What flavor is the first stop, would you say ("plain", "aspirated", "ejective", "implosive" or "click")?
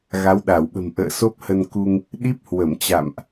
implosive